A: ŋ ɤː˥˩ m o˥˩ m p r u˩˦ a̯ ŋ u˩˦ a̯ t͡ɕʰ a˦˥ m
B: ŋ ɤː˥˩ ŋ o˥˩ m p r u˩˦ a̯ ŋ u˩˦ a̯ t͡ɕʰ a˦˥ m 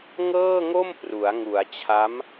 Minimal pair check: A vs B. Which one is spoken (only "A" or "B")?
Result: B